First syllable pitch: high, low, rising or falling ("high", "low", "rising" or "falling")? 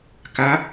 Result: rising